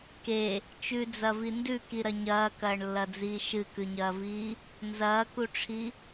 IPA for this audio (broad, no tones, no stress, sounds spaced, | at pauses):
k e | t͡ʃ ʉ d͡z ɐ v i n d ʉ k i ɾ ɐ ɲ ɐː k ɐː ɳ lː ɐ d͡z iː ʃ ɨ k ʉ ɲ ɐː v iː | n z ɐː k u ʈ͡ʂʰ i